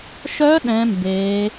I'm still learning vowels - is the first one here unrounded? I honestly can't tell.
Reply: no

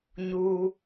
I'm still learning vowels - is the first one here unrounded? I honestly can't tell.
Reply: no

